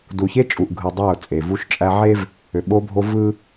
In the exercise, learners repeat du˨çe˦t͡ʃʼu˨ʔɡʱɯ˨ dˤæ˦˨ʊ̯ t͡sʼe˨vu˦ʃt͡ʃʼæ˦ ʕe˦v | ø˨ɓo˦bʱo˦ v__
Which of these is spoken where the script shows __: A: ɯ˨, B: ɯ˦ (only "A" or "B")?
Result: B